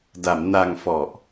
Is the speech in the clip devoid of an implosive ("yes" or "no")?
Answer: yes